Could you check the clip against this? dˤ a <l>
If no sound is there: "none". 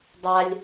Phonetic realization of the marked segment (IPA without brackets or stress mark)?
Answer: lʲ